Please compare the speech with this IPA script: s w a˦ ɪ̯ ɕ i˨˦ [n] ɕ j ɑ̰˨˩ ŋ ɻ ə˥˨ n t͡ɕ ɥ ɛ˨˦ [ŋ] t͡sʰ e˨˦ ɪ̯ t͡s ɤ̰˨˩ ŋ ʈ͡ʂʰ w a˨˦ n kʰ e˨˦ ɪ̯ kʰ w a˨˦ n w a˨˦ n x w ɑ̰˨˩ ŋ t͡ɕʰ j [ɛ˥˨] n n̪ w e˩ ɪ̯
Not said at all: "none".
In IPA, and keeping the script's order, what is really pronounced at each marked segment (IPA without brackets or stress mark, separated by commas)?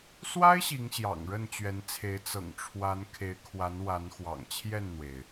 ŋ, n, ɛ˥˨